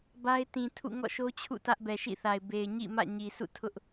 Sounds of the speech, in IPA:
b a˦ ɪ̯ t ĩ˨ tʰ ṵ˦˨ ŋ ɔ̰˦˨ ʃ o˦ t͡ɕʰ ṵ˦˨ t ä˦ ʔ b ɛ˨ ʃ ḭ˦˨ θ a˨ ɪ̯ b e˨ ɪ̯ ɲ ḭ˦˨ m ä̰˦˨ ɲ i˨ s ṵ˦˨ tʰ ʊ˦ ʔ

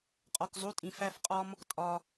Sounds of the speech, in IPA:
qʼ ɒ˨ k zˤ u˧˥˧ tʼ ĩ˨ f æ˥˧ f qʼ ɒ˥ m | tʼ ɒ˨

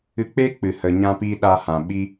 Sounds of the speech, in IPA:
ɨ˧ k͡p eː˦ k͡p ɨ˨ h ə˨ ɲ ã˧ p iː˧ ɗ a˧ h ã˨ ɓ i˦

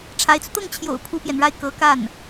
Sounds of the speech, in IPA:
ʈ͡ʂʰ a˧˥ ɪ̯ t͡s u˧ t̪ ɤ˥˩ ŋ t͡ɕʰ j o̰˨˩ ʊ̯ pʰ u˥ p j ɛ˨ n ɻ a˥˩ ɪ̯ k ɤ˧˥ k a˥˩ n

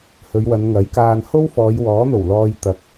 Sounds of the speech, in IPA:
h ɵ˨˧ ɥ w ɐ˨˧ n ŋ ɐ˨˥ j k aː˧ n h o˥ w f ɔː˨˧ j w ɔː˨˥ n̪ o˨˩ w l ɔː˨ j t̪ ɐ˨˥ k̚

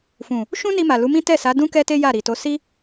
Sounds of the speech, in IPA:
f ũ˨ | ʃ ũ˦ n i˧ m a˨ l u˨˦ m ĩ˦ t ɛ˦˨ s a˨˦ d ũ˦ k ɛ˦ t e˦ j a˦˨ ɾ i˨ t o˨˦ s i˦

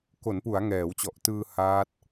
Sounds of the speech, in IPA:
k o˩˦ n p u˩˦ a̯ ŋ ɛː˩˦ w t͡ɕ ɔ˨˩ ʔ t ɯː˧ h aː˦˥ t̚

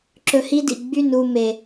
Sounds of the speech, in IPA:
ǁ ɵ˧ h i˦ d ḭ˨ ɡ͡b y˦˨ n u˦˨ m e˨

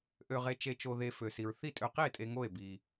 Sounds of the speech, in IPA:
ʔ ø˧ ʁ e˧ t͡ʃ e˧ t͡ʃ o˧ ð e˧ f ø˧ s i˧ ɹ θ i˥˨ tʼ ø˧ q i˥˨ e̯ tʼ e˧ ŋ o˥˨ e̯ b i˧

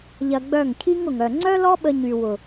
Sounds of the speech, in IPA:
ʎ ɐ˧ ɡ͡b œ˦˨ ŋ cʰ i˦ ŋ ʊ˨ ŋ œ˨ ŋ͡ǀ œ˦ l ɔ˦ ɓ ə˧ ɲ y˨ w ʊ˨

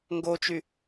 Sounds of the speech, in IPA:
ŋ ɡ o t͡ʃ y

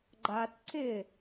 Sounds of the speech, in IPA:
ɡ͡ǃ a t ǀ ɪ

